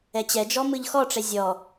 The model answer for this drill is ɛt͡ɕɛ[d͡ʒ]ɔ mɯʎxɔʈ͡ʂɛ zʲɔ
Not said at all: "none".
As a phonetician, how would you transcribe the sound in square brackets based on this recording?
d͡ʒ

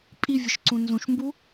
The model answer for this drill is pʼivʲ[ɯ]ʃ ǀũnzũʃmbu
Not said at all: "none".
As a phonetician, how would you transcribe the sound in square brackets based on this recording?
ɯ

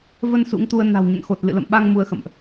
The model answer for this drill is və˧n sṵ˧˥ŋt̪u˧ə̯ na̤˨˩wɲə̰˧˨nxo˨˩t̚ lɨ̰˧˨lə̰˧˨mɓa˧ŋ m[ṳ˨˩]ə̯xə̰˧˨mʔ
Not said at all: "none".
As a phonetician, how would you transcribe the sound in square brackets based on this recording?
u˨˦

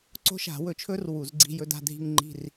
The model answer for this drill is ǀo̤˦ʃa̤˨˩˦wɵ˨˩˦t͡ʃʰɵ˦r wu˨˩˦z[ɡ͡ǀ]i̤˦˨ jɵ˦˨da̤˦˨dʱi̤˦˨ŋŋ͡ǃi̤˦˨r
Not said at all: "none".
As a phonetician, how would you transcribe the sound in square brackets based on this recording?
ɡ͡ǀ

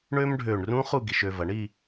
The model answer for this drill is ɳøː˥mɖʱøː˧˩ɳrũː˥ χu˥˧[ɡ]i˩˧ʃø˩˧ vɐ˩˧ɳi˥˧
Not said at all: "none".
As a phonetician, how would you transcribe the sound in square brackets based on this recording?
ɡ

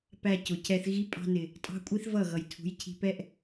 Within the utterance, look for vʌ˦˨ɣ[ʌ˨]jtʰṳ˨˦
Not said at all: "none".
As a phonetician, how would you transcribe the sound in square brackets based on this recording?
ʌ˨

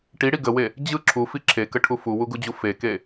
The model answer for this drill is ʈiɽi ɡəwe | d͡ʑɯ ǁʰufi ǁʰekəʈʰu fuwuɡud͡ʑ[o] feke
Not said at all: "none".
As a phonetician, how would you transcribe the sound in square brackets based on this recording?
u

